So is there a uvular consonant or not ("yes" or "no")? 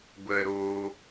no